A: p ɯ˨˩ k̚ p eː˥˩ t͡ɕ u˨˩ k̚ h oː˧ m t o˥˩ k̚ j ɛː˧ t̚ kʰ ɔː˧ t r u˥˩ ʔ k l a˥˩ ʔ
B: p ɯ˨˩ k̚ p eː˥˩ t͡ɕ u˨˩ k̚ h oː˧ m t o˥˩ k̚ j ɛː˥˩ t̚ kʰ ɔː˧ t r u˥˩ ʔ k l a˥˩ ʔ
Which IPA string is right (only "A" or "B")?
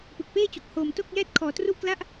B